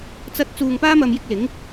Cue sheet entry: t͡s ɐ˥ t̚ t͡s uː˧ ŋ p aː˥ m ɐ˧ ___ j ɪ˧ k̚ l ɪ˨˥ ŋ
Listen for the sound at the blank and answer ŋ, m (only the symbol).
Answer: m